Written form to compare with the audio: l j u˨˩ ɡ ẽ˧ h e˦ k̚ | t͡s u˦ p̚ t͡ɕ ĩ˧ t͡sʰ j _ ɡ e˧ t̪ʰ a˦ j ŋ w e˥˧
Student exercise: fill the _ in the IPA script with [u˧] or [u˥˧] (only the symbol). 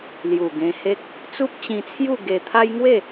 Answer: u˥˧